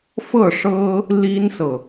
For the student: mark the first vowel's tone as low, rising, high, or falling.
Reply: falling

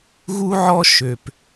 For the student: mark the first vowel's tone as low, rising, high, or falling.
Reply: high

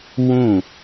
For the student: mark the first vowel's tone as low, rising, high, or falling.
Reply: falling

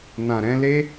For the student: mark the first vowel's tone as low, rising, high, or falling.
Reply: low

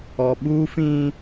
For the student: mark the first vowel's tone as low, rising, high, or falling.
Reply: low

